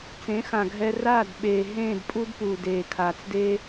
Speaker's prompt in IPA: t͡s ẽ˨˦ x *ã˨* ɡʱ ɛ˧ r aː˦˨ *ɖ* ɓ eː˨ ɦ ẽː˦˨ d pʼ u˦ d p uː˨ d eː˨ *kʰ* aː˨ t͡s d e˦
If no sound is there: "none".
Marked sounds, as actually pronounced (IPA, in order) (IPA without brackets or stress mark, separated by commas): ã˨, d, kʰ